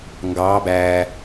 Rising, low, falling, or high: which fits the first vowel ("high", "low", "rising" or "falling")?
rising